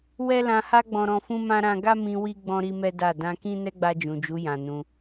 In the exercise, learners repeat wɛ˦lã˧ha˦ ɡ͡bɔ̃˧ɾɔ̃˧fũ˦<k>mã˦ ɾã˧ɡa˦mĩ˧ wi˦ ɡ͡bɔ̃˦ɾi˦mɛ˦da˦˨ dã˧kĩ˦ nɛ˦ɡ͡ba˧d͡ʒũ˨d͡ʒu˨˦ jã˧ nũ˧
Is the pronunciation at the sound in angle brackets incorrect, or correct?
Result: incorrect